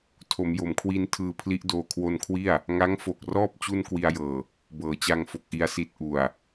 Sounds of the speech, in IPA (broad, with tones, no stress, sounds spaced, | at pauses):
tʰ o˩˦ m j o˩˦ m kʰ w i˧ n tʰ ɯː˧ pʰ l i˦˥ ʔ d oː˧ kʰ w o˧ n kʰ w i˥˩ a̯ | ŋ a˦˥ ŋ f o˨˩ k̚ r ɔː˥˩ p̚ t͡ɕ u˥˩ n k w i˧ a̯ j ɤː˨˩ | b ɤː˩˦ t͡ɕ a˧ ŋ f o˨˩ k̚ ʔ i˧ a̯ s i˦˥ t̚ ʔ u˨˩ a̯